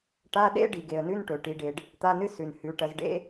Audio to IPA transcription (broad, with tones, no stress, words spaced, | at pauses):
ʈa˧˥˧ɗḛ˥ ɖi˩ɡe˩ə̯nʉ˧˥˧n ʈɵ˩ʈi˩˧ɖe˩ɖ | t̪a˧˥˧nɨ˥ sʉ˩nhʉ˩˧ ʈɐ˩˧zɖḛ˧˥˧